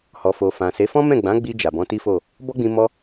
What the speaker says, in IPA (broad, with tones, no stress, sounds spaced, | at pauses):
h ɔ˨ f o˨ f ã˨ s e˨˦ f ɔ̃˦ m ɛ̃˦˨ ɡ͡b ã˨˦ ɡ͡b i˧ d͡ʒ a˨ b ɔ̃˨˦ t i˦ f o˦˨ | b ɔ˦ ɡ͡b ĩ˧ m ɔ˧